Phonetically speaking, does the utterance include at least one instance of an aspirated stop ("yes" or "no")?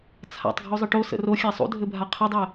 yes